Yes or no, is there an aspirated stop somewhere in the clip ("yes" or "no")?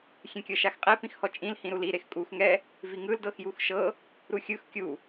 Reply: no